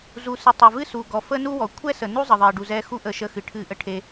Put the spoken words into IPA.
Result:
z u˨ s ɨ˨ tˤ ɛ˨ v ɨ˦ s u˨ ɡ ɔ˨ f ə˦ n u˦ w ɔ˨ kʷʰ ɛ˦ s ə˨ n u˦ zˤ ə˨ ðˤ e˨ ɖ u˨ z ɛ˧ x u˦ ʔ ə˧ ʃ ə˧ x ɨ˨ ʈʰ ɨ˧ ʔ ə˧ ʈʰ e˧

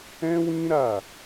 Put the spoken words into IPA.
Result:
ɛ̃˦ w ĩ˦ ɾ a˦˨

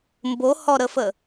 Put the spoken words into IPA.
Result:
m b o h ɔ ɾ ə f ə

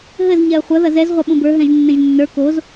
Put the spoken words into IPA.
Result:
ɦ ɘ z ɲ ɛ ə̯ χʷ ɐ ð ɐ z ɛ z ʁʷ ɐ ɓ ũ b ə˞ ɦ ɛ̃ ʒ nː ẽ ʒ nː ə˞ k o z

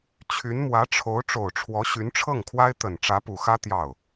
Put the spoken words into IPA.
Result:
t͡ɕʰ y˧˥ n m w ä˧˥ ʈ͡ʂʰ o˧˥ ʊ̯ ʈ͡ʂ o˨˩ ʊ̯ ʈ͡ʂʰ w ɔ˧˥ ɕ y˧˥ n ʈ͡ʂʰ ɤ˥˩ ŋ kʰ w a˥ ɪ̯ t̪ ə˨˩ n ʈ͡ʂ ä˧˥ p u˨˩ x ä˥ t̪ j ɑ˥˩ ʊ̯

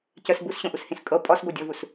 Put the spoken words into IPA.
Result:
c ə s b u s ɕ õ ʔ u s h ĩ s kʼ ɤ pʼ ɔ s b o dʲ ʌ v u s

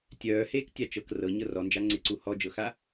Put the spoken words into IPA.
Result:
tʲ œː h eː k tʲ a t͡ʃ ɤ k r ɤ ɲ ɤ r ɔ n d͡ʒ a ŋ͡ǀ ɪ ǀ u h ɔ d͡ʒ ɤ x a

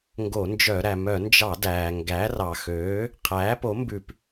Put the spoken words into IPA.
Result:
ŋ ɡ o˧˩˧ n d͡ʒ œ˧˩˧ ɾ æ˩ m œ˧˩˧ n d͡ʒ ɑ˧˩˧ d æː˩ ŋ ɡ æ˩˥ r ɑ˩ x øː˩˥ | qʰ æː˩˥ p o˩˥ m b ʉ˧˩˧ p

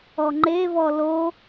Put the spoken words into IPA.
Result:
ɔ ŋ͡ǃ e v ɔ l o

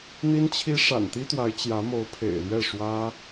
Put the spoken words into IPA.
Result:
n̪ i˥ n t͡ɕʰ i˥ ʂ a̰˨˩ n t̪ i˥ t̪ w a˧˥ ɪ̯ t͡ɕ j ä˧˥ m o˧˥ ʊ̯ pʰ ḛ˨˩ ɪ̯ l ɥ ɛ˥˩ ʂ w ä˥

